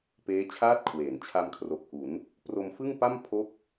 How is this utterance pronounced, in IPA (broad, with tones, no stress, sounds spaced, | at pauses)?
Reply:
p eː˦˥ t͡ɕʰ aː˥˩ t̚ kʰ w eː˩˦ n t͡ɕʰ a˧ m kʰ r o˨˩ k̚ ʔ u˩˦ n | p r o˧ m f ɯ˥˩ ŋ p a˥˩ m pʰ o˥˩ k̚